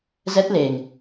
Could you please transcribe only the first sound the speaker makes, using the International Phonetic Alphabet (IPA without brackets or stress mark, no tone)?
z